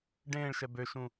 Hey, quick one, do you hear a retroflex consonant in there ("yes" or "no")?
yes